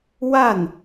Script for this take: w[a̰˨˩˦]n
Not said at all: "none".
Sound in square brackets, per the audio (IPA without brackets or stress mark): a˥˩